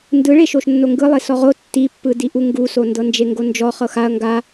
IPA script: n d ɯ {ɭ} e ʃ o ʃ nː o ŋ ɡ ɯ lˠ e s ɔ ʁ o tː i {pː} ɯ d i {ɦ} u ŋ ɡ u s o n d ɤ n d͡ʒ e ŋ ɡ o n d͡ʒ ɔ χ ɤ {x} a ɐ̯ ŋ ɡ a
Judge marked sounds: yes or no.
yes, yes, no, yes

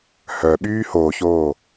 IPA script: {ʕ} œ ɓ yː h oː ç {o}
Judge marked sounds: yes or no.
no, no

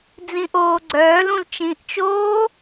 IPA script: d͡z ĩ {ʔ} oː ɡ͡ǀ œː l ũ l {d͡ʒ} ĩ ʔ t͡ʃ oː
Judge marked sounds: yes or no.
yes, no

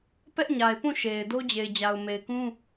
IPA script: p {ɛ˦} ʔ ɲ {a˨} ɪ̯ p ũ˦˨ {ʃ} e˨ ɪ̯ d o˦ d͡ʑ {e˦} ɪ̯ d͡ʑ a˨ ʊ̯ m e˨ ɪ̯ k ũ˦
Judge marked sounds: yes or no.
yes, yes, yes, no

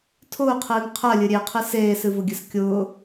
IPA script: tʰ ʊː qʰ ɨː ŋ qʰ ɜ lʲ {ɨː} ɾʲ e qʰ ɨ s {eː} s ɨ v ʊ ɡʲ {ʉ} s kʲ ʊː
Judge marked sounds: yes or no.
no, yes, no

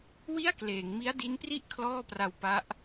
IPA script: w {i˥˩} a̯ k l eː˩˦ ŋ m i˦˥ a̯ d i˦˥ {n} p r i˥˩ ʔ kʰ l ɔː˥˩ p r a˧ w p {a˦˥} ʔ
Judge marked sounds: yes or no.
yes, yes, yes

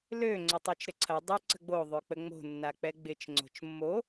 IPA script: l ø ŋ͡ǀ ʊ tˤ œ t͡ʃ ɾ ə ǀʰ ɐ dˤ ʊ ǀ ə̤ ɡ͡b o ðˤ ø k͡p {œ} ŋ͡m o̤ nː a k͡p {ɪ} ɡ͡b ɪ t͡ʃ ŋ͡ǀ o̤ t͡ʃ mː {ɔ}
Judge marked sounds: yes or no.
no, no, no

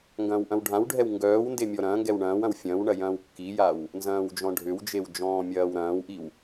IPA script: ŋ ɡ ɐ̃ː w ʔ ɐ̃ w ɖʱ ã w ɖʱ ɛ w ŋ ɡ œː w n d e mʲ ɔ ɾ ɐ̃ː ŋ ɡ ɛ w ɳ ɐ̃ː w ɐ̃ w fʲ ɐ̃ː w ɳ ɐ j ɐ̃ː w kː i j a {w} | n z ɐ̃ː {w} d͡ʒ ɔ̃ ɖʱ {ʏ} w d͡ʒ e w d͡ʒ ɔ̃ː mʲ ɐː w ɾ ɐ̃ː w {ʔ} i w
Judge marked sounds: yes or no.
yes, yes, yes, yes

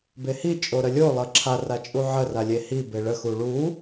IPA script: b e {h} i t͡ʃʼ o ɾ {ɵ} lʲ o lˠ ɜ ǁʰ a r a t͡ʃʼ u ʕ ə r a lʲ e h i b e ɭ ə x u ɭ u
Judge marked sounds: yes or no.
yes, no

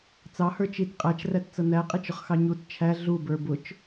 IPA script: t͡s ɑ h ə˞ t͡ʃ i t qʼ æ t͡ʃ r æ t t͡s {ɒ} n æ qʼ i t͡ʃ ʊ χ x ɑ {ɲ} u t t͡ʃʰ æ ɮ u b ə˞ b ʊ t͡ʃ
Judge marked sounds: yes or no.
no, yes

